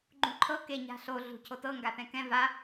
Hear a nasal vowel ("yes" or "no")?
yes